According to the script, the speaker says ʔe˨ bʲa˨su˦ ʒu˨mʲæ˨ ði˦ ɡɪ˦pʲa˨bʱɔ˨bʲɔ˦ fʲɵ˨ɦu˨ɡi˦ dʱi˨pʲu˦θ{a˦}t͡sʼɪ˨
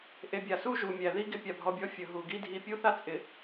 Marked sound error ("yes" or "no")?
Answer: no